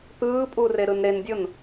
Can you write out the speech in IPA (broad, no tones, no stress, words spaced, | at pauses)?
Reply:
t̪ɯːpʼu reɾɯnɾendʲon